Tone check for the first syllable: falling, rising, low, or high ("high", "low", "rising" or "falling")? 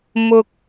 high